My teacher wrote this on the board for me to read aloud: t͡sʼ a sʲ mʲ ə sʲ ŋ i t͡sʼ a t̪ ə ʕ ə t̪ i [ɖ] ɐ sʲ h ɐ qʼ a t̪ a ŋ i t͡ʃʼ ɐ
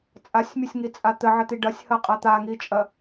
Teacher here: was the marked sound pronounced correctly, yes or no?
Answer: yes